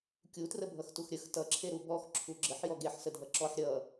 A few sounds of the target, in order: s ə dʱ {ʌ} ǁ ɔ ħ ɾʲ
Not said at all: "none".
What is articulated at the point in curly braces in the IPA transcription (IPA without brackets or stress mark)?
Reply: ʌ